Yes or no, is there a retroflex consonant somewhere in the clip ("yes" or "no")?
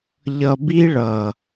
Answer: yes